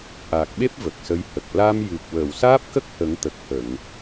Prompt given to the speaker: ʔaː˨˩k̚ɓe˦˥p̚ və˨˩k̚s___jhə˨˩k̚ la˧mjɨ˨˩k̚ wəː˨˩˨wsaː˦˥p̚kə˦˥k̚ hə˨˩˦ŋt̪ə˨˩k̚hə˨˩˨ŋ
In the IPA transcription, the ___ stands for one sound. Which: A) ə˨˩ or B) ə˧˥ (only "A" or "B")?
B